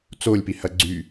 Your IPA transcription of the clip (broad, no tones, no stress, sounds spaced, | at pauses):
t͡s o lʲ p i h ɐ ɡ͡ǀ y